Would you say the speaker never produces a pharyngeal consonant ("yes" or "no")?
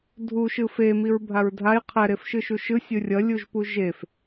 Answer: yes